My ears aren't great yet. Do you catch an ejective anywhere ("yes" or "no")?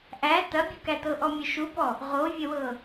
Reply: no